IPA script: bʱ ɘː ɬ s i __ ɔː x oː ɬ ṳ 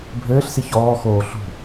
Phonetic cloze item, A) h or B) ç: B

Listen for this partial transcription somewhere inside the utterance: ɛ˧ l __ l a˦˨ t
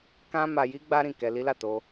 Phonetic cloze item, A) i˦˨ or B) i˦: B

